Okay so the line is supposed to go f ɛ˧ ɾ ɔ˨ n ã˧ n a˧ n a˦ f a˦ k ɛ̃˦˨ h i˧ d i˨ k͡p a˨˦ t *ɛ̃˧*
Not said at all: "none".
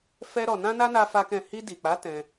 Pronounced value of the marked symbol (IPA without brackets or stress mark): ɛ̃˧